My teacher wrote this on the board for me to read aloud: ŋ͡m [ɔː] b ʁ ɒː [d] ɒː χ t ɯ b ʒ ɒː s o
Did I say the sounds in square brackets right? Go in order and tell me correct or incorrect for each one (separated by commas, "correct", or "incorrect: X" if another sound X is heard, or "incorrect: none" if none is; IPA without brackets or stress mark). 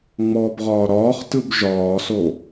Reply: correct, incorrect: ɾ